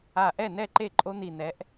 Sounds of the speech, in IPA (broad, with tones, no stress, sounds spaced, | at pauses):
a˧˩ ʔ ɛ˥˩ n ɛ˥˩ ǃ e˥˩ ǃʼ o˦ n̪ i˧˩ n̪ ɛ˨˥ ʔ